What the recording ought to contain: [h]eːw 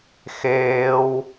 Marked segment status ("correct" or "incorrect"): incorrect